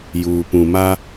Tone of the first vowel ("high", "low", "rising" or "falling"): low